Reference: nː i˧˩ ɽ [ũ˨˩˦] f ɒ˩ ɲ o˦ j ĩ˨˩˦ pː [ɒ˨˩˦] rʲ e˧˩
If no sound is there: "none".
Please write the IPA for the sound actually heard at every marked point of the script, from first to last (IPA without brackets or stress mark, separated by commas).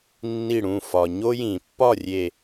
ũ˧˩, ɒ˥˨